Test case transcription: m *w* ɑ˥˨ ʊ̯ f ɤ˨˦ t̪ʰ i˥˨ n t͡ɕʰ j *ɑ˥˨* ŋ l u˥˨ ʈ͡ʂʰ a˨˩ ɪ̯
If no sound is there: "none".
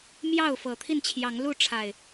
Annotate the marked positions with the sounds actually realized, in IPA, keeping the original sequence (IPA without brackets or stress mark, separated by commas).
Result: j, ɑ˨˦